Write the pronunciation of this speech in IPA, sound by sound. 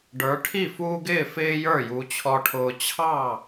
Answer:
ɖ ə˞˨˦ ʈʰ i˥˩ f uː˦ ɡ ɪː˥˩ f ɪː˦ j ə˞˥˩ j u˨˦ t͡ɕʰ ɔ˦ ʈʰ ʊː˦ t͡ɕʰ ɑ˥˩

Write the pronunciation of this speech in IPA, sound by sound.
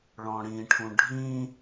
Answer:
ɭ ɔ̃ ɽ ĩ ʈʰ ũ ɖʱ ĩ

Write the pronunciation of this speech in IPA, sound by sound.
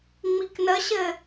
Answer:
ŋ͡m i k n ə ɕ ɘ

